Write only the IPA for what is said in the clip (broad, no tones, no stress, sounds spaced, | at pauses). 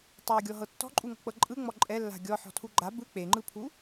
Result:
tˤ o ɡʲ ɔ ɦ ɤ tː ɔ̤ ǃʼ u ŋ ɔ̤ k͡p ɤ ǃʼ ɯ ŋ͡m ɔ ǃʼ ɛ lː a̤ ɡʲ ɔ ħ ɔ̤ tʰ u ɡ͡ǃ a b ɯ k͡p e ŋ͡ǃ ɯ pʰ u